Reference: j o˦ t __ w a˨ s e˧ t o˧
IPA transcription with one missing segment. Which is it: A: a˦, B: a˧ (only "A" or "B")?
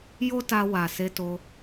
B